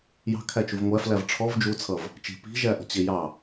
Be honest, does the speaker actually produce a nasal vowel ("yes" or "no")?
no